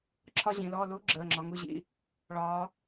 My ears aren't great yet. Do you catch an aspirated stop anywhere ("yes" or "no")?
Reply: yes